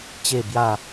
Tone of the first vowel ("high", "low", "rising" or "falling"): falling